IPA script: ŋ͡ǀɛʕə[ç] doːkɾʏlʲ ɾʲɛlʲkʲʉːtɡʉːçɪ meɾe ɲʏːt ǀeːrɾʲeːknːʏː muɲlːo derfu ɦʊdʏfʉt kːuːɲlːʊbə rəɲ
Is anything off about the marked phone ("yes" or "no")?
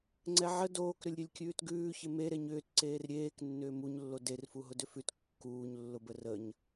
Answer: yes